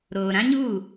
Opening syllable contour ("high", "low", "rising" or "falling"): low